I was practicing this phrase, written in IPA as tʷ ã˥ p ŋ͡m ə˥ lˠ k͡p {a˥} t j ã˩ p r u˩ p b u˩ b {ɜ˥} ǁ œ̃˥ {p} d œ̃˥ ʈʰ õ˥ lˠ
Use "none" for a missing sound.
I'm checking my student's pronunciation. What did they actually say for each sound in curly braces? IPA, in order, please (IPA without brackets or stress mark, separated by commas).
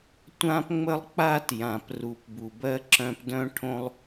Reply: a˥, ɜ˥, p